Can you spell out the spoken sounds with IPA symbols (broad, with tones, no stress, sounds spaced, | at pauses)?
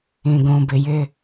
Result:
ĩ˨ ɡ ũ˨ b ɪ˨ j ɪ˦